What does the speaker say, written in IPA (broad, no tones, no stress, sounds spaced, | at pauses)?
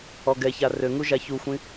ɔ ɡ ɛ ç a r ø ŋ u ʒ a ç u xʷ ĩ